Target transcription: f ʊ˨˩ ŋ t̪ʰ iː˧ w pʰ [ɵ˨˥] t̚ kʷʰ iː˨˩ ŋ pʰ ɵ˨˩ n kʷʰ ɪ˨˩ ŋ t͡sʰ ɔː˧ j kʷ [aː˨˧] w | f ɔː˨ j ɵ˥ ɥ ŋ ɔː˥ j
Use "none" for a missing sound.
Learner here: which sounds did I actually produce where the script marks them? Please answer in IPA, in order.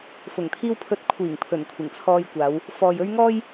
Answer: ɵ˨˥, aː˨˧

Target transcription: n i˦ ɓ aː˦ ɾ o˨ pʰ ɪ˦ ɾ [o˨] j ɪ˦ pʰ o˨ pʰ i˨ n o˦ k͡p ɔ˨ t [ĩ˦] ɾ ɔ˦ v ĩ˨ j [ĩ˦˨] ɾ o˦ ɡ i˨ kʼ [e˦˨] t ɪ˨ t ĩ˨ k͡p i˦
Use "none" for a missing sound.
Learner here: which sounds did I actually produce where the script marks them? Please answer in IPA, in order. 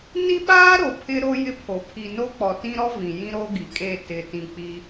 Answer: o˦, ĩ˦, ĩ˦, e˦˨

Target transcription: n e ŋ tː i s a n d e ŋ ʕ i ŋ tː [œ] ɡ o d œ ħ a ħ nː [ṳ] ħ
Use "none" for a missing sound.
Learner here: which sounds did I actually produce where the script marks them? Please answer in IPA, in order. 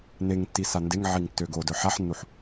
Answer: ø, u

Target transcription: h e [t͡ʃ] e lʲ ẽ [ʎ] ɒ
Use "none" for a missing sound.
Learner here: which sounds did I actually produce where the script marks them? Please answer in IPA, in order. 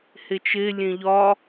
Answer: t͡ʃ, ʎ

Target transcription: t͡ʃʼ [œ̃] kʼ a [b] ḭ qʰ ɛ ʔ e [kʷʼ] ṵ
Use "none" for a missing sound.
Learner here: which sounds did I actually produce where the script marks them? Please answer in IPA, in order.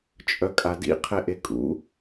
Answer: œ, d, kʼ

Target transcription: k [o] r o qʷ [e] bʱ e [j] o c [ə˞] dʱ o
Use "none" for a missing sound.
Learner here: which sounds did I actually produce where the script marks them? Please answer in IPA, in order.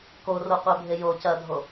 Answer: o, e, j, ɐ

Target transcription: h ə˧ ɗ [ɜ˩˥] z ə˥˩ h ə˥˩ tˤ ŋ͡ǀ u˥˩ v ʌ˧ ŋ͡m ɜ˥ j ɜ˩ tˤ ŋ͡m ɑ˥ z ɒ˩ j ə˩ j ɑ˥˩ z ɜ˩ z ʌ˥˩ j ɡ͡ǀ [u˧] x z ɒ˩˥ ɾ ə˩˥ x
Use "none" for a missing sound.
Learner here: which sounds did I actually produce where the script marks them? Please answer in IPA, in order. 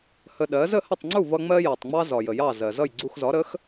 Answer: ɜ˩˥, u˧

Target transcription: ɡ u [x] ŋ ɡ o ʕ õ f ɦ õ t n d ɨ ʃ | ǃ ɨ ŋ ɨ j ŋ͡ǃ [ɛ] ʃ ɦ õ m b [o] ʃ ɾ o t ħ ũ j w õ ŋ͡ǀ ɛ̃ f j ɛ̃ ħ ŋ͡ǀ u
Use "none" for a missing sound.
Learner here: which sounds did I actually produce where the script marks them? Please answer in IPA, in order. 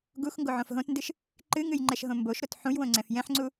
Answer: x, ɛ, o

